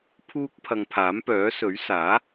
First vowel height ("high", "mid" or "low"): high